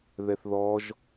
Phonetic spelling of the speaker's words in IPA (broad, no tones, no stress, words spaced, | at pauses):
ðɛθðɔʒ